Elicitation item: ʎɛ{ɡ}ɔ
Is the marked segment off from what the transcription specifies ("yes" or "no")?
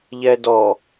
yes